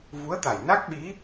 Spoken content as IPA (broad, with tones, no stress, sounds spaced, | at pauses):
v u˧˥ ə̯ t̪ a˨˩ j n a˦˥ k̚ ɓ i˧˥